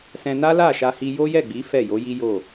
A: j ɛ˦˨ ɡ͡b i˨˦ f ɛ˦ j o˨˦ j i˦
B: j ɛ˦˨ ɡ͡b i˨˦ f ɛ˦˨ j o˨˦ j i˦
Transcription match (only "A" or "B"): B